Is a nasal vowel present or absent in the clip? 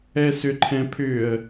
present